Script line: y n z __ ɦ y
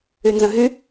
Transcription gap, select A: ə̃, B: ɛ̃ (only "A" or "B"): A